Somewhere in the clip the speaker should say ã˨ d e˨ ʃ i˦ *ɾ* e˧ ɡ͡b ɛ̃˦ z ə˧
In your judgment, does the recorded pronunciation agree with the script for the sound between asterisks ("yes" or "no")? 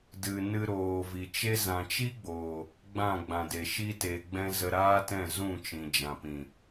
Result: no